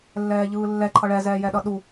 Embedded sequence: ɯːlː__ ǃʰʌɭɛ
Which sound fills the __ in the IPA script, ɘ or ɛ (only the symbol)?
ɛ